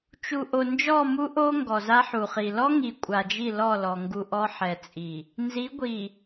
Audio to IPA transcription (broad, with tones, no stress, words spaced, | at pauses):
t͡ʃu˨ ʔo˨ nd͡ʒɔ˦˨ mu˦ʔo˦ ŋɡɔ˨za˦ħu˨χi˨ lɔ˦ ŋi˨kʷʼa˨ d͡ʒi˦˨lɔ˦˨lɔ˨ ŋɡu˨ ʔɔ˦ħɛ˨t͡sʼi˨ | nzi˨˦ɡʷi˨